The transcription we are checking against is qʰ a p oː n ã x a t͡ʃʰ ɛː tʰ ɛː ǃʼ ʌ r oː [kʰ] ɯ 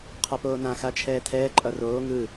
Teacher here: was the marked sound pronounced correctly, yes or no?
no